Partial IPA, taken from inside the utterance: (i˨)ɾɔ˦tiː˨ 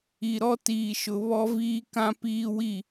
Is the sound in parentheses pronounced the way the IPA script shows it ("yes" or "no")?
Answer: yes